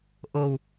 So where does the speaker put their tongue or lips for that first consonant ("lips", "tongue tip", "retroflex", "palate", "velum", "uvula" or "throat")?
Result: throat